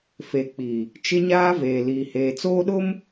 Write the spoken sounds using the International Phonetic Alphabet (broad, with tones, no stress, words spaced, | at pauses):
fe˨k͡pi˨ | t͡ʃɪ˦ɲaː˦veː˨ liː˨heː˨t͡soː˦ɗʊ˦m